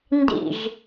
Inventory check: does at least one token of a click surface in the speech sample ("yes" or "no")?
no